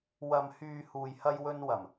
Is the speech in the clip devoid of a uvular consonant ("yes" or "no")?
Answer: yes